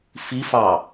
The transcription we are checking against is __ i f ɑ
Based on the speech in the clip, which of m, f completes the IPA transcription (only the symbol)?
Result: f